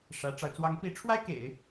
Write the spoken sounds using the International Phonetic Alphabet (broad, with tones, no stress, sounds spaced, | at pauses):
ʂ ä˧˥ ʈ͡ʂ ɑ˧ ʊ̯ t͡s w ɑ˧˥ ŋ p i˧˥ ʈ͡ʂʰ w a˥ ɪ̯ k ḛ˨˩˦ ɪ̯